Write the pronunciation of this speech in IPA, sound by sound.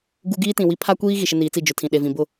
ɡ u˦ ɡ iː˦ t ĩ˨ w i˦ pʰ a˦ kʷ iː˦ ɣ i˨ ʃ ɪ˦ n iː˨˦ t͡s i˦˨ d͡ʒ ʊ˨ tʰ ĩ˨ ɗ e˨ v ĩ˨ b ʊ˦˨

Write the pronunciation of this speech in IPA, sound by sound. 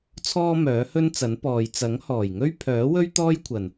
t͡sʰ ɔː˥ m œː˨˥ h ɵ˥ n t͡s ɐ˨˥ n p ɔː˨ j t͡s ɐ˨˥ ŋ h ɔː˨˩ j ŋ ɵ˥ ɥ pʰ œː˨˥ w ɵ˥ ɥ t̪ ɔː˥ j kʷʰ ɐ˨˩ n

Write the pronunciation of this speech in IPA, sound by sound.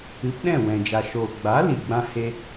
ɨ˨˦ p ɗ ɛ̃˦˨ w ɛ̃˨ d͡ʒ a˨ ʃ oː˨ ɡ͡b a˨˦ l i˨ ɡ͡b ã˦ h e˦

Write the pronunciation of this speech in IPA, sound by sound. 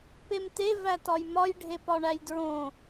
p e m t e v æ t ɒ j m ɒ j ɖʱ e p ɒ ɳ æ j d ɹ õ

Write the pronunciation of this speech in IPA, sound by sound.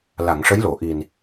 l a˨˩˨ ŋ ʂ ə˧˥ j l o˨˩˨ ʔ i˨˩ n

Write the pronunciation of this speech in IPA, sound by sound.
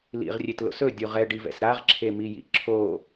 l ḭ ʁ rʲ e t l o̰ s ɵ dʲ u ʁ ɛ ɖ i v ɛ̰ s ɾ a ʁ ǁʰ e m i j ḭ ǁʰ o

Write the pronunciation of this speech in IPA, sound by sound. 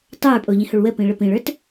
tˤ ə˞ pʼ o ʎ ĩ h o ɭ w ə p ĩ ɭ ə p ĩ ɭ ə˞ t

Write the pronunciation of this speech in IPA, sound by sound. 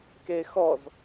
k e x ɔ z

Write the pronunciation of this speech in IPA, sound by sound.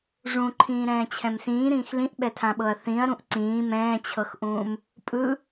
ʐ ũ ǃʰ ĩː ɾ ɛ̃ː t͡ɕʰ ɛ̃ m s ĩː ɾ ĩː x l ĩ ʔ ɓ ɛ tʰ ã ɓ ɤ ɐ̯ θ ĩ ɐ̯ ɾ ũ ʔ ǀ ĩː m ɛ̃ː t͡ɕʰ ɤ x ʔ ũː m | pʼ ɯ

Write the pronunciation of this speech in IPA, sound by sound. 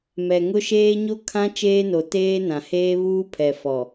m ɛ˨ ŋ ʊ˦ ʃ eː˦ ɲ o˦ kʰ ã˦ t͡ʃ eː˦ n o˨ t eː˦ n ã˨ h eː˦ β uː˦ pʰ ɛ˨ f ɔ˨

